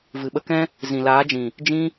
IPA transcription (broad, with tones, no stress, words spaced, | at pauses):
vɨ˨ɓə˧kɛ̃˦ | zĩ˨laː˨˦d͡ʒĩ˨ | d͡ʒĩ˦